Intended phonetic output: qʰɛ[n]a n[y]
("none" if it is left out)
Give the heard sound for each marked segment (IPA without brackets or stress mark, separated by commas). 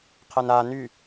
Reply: n, y